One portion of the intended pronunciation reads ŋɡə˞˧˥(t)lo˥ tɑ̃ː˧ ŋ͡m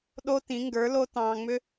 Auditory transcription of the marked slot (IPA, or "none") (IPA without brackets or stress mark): none